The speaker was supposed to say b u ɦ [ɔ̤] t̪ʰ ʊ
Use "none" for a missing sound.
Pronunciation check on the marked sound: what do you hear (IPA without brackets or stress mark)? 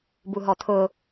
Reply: ɔ